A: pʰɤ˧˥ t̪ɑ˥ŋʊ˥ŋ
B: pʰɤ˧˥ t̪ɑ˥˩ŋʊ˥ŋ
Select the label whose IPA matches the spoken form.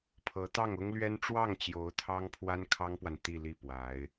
B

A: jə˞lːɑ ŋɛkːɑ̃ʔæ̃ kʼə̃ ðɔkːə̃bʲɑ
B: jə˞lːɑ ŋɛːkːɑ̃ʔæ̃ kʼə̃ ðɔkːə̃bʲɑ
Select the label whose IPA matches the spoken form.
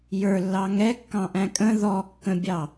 A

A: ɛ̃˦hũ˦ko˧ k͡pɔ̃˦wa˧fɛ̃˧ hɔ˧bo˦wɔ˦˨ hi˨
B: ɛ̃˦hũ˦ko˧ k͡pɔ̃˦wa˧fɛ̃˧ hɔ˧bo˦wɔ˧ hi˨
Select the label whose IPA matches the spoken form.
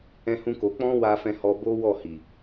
A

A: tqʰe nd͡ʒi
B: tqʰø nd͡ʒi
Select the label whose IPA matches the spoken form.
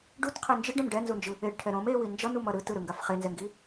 A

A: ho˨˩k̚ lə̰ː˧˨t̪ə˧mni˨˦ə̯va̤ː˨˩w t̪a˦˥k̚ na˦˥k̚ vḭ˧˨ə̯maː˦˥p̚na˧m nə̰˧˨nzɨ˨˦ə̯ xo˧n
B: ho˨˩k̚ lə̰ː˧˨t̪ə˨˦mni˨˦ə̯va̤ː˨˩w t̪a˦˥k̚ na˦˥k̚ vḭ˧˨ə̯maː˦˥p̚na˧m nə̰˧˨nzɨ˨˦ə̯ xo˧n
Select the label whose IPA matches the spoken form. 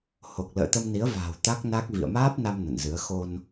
A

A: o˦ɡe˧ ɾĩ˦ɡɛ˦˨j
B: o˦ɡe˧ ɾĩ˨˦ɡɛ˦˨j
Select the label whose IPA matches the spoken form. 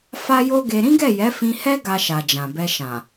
A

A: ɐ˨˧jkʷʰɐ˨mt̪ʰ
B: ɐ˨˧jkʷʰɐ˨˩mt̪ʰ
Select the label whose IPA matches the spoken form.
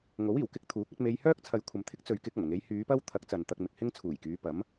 A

